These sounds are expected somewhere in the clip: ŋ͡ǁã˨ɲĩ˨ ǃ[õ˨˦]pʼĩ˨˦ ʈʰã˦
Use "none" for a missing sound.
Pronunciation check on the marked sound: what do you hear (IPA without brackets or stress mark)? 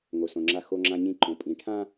õ˨